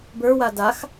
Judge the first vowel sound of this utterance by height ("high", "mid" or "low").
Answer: mid